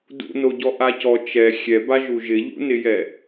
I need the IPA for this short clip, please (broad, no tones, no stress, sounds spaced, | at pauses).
d ṵ n o ɟ ɔ ʔ a c ɔ t͡ʃ ɛ xʲ ɛ b a ʒ u ʒ ɪ ʎ ṵ n ɪ j ɛ